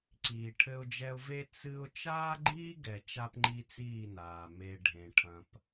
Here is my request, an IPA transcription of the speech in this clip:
ǀ iː˨ ʈʰ ɘ˦ ʊ̯ d͡ʒ ɛ˦ ʊ̯ v e˦ t͡s ɨ˦ ʊ̯ t͡ʃ aː˦ ɡ͡ǃ iː˦ ɡ ɛ˨ t͡ʃ a˦ p ŋ͡ǃ i˦ t͡s iː˦˨ n aː˨ m e˨ ɖʱ ẽ˨ ʈʰ ɐ̃˦ p

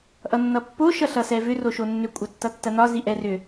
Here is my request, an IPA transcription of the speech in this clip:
ʔ ʌ nː ʌ pː o ʃ ʌ ɬ ʌ s ɛ v ʏ r o ʃ o nː ʏ kʷʼ ɐ tː ʌ tː ɐ n ɒ z i ʔ ɛ r ʏ

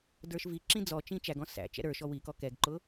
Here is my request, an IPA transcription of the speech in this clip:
d ə˞ ʃ v i ǁ ĩ d͡z ɔ t͡ʃ ĩ t͡ʃ æ ɡ ɔ̃ s æ̰ t͡ʃ ɛ̰ ɾ ə˞ ʃ ɔ w i k ɔ k ɛ ɡ ǃ ʊ

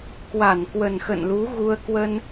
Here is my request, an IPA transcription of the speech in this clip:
k w a˧˩ n k w ə˨˩ n x ə̰˧˨ n l u˨˦ ɣ u˧ ə̯ k w ə˧ n

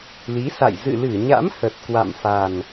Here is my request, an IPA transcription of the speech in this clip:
l i˨˦ s a̰˧˨ j z ɨ̰˧˨ l ɨ˧˩ ɲ a̰˧˥ m h ə˨˩ t̚ k w a̰˧˨ m f a˨˩ n

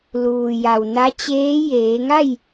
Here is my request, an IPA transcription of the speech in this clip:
l uː˩ j a˩ w n a˧˥ t͡ɕ eː˧˥ j eː˩˧ ŋ a˥˨ j

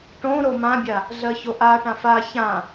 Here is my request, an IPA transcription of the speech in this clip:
ʈ õ ɾ o m ã bʲ a | ɮ ɜ ç o ʔ a ʈ ã f a ç ã

